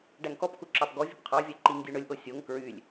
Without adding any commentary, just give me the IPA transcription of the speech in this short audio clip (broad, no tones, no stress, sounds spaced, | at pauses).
ɖ æ ŋ k ɔ p k u ǁ ɑ p ɡ ɔ vʲ ɵ p qʰ ɑ vʲ æ ǃ i ŋ dʲ u ɳ ɵ lʲ ʔ o sʲ o ŋ k ɹ y lʲ